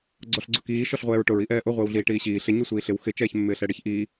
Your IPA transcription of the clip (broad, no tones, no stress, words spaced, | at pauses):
ɡ͡ǀɔɬɡ͡ǀʊkiː ʃɔɬʁʷɛːɹʈʊɹ iʔɛːʔʊ ʁʷɪːwɮiːʈiːɕiː ɬɪ ɲusʷiːɬɪw xɪ t͡ʃɛːçmːɪːɬɛɽɪç ʔiː